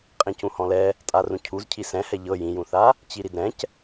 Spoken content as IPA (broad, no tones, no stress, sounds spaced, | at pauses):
qʼ ĩ c ũ h ɔ̃ l ɛ | tʼ a r ũ cʰ u z cʰ i s ɛ̃ h ɛ ʎ ɤ j ĩ j ũ θ a | t͡ɕ i ɾ i d ɾ ɛ̃ c